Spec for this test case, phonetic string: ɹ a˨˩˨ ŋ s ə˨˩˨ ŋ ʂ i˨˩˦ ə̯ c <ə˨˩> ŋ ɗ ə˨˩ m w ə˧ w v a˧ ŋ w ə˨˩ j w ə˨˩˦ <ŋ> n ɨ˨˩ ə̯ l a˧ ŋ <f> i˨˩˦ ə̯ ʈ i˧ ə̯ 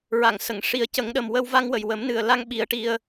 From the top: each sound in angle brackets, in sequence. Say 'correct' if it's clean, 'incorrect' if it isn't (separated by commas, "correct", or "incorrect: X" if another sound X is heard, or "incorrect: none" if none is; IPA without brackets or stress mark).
incorrect: ə˨˩˦, incorrect: m, incorrect: ɓ